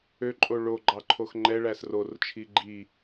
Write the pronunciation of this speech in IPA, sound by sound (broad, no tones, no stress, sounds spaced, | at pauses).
ø ǃʼ o ɭ o ɡ͡ǃ ɑ ǃʰ o x ŋ͡ǃ ɛ ɭ æ s r o r t͡ʃʰ i ɡ͡ǃ i